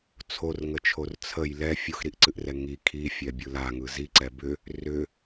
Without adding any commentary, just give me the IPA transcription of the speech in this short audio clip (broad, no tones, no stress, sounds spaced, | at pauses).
t͡sʰ o r ŋ ə t͡ʃʰ o r t͡sʰ ə j l ɛ fʲ o x ɾ i ʔ ǀ ɨ ʔ r ɛ ŋ i kʰ i fʲ ɛ bʲ ɯ l a ŋ ɯ z i ǀ ɛ b ʏ | r ʏ